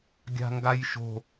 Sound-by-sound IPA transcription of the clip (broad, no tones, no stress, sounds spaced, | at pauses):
ɡʲ a̤ ŋ ɡ a j ʃ o̤